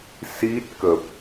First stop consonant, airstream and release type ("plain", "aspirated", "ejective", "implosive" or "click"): plain